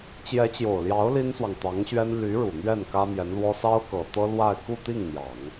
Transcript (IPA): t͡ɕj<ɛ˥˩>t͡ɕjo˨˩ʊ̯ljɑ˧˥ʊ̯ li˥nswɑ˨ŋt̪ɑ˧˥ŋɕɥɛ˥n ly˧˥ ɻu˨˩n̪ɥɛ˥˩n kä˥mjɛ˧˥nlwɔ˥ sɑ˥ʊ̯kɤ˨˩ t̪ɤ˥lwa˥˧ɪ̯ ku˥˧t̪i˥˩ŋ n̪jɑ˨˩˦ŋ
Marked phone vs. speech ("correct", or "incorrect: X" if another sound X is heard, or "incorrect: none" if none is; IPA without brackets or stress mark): incorrect: ɛ˧˥